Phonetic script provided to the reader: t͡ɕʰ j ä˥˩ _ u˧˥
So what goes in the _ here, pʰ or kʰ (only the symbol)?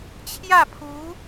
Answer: pʰ